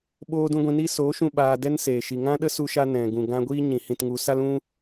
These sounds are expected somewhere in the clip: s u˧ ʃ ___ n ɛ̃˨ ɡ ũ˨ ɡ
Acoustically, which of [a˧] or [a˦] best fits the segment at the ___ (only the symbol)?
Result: a˧